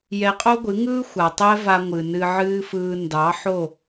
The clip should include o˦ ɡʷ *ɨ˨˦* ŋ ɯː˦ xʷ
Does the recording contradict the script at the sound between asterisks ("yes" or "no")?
no